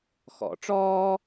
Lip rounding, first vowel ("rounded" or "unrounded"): rounded